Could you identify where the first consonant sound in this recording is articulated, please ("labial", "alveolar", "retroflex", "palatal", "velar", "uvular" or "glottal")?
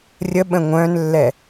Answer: alveolar